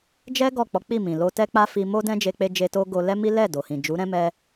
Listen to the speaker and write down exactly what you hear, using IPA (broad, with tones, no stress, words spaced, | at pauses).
d͡ʒɛ˦ ɡɔ˦˨k͡pɔ˨˦k͡pi˦˨ mĩ˨lo˧ tɛ˦k͡pa˦fi˧mo˦ dɛ̃˦d͡ʒe˧k͡pe˧d͡ʒe˧ to˦ ɡo˧lɛ˦mi˦ lɛ˦˨do˨hĩ˨ d͡ʒu˨˦ɾɛ̃˦mɛ˧